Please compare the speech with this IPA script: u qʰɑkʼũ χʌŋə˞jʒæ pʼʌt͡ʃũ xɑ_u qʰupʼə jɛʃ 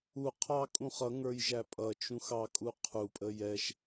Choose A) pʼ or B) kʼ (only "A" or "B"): B